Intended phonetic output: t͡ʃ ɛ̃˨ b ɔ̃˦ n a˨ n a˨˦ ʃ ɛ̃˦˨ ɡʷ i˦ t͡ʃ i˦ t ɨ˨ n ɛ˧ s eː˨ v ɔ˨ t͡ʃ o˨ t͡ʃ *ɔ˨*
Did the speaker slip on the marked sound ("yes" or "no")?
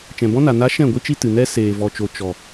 no